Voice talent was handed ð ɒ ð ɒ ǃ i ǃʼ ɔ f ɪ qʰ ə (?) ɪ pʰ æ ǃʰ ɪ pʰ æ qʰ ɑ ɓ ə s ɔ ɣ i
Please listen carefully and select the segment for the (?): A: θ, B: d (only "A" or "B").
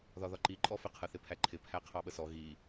A